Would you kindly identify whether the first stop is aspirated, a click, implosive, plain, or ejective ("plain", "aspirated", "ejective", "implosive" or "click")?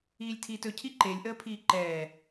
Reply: aspirated